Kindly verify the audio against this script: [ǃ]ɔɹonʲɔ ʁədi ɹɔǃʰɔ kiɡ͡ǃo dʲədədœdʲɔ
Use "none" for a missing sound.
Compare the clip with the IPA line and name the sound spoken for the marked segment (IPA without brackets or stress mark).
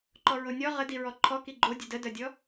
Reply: ǃ